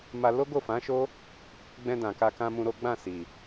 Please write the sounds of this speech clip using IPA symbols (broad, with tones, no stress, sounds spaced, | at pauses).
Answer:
m a˧ l o˦ ɡ o˦˨ f ã˨˦ ʃ o˦ | ɡ͡b ɛ̃˧ d ã˨ k a˧ k ã˧ m ũ˧ ɾ o˦ ɡ͡b ã˦˨ s i˨